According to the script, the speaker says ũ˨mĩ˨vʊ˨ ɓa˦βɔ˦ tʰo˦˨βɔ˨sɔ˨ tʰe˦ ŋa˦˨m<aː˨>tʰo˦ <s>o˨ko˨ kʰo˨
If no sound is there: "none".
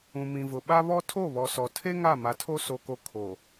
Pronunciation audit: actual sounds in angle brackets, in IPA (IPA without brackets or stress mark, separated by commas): a˨, s